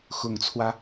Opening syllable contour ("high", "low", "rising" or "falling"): low